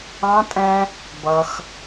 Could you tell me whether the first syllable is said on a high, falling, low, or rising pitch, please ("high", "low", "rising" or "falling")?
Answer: high